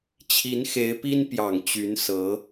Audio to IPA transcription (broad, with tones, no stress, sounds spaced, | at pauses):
t͡ɕʰ i˧˥ n x e˧˥ ɪ̯ p i˥ n p j ɑ˨˩ ŋ t͡ɕ y˧˥ n s ɤ˧˥